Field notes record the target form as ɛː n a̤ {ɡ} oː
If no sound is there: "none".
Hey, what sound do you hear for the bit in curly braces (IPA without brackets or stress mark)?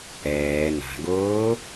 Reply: ɡ